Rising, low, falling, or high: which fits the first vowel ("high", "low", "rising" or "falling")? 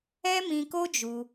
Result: high